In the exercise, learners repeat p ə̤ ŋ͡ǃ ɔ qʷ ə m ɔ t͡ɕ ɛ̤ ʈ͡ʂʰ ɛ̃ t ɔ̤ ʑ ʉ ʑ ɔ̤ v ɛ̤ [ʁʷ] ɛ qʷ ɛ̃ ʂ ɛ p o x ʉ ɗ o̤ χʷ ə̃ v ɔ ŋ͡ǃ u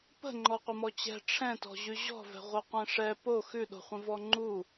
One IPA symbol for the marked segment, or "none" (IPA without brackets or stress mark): ʁʷ